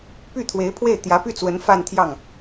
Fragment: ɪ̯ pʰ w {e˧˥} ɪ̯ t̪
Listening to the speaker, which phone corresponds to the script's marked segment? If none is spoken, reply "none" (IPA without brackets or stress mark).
e˥˩